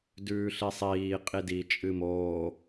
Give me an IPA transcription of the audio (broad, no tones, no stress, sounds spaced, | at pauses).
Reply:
d ʉː ɬ i sˤ iː qʼ i d i t͡ʃʼ ɨ m oː